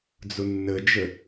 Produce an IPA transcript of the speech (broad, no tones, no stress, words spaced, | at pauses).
d͡zʊnːəd͡ʒə